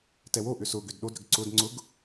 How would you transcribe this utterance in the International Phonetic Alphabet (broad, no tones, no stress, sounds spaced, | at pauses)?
t ɛ w o ʔ ʏ s ʊ ɡ ʏ d ɗ o d ɾ ʏ ɡ ǀ ʊ d ŋ͡ǀ ʊ ɡ